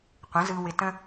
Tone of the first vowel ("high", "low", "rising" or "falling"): rising